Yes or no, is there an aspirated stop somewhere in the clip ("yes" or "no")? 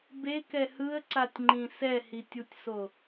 no